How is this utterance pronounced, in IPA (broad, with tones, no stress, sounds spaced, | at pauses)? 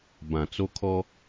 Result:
b ã˨ t͡s o˦ kʰ ɔ˦